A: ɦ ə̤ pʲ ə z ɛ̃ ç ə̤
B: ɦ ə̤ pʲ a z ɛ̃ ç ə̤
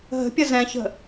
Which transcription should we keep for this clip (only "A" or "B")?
A